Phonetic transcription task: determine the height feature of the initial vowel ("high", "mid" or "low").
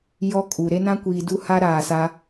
mid